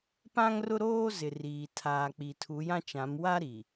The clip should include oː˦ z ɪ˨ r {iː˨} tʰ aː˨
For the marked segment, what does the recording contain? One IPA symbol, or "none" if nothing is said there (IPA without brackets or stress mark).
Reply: iː˨